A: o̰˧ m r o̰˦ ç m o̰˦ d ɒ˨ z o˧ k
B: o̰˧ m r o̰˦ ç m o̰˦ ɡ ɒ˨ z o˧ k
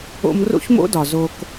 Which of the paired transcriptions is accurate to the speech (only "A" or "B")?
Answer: A